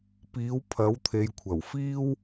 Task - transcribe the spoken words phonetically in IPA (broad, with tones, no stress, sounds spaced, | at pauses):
p iː˨˥ w pʰ ɐ˨˥ w t̪ʰ e˨ j kʷʰ ɐ˨˩ w f iː˥ w